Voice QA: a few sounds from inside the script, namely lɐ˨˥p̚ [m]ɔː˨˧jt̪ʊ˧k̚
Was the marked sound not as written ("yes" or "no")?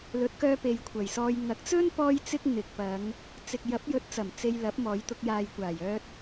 no